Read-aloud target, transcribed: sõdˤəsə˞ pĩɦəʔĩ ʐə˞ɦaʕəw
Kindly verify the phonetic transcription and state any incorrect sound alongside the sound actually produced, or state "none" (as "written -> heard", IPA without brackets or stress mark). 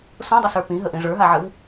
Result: none